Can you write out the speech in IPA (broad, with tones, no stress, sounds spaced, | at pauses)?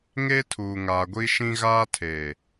ŋ e˦ tʰ uː˨ ŋ aː˨ ɡʷ i˦ ʃ ĩ˦ ɣ aː˦ tʰ eː˨